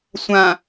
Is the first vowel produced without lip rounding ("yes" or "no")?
yes